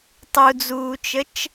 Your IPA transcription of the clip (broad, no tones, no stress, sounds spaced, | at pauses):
tˤ u d͡z uː t͡ʃ ə t͡ʃ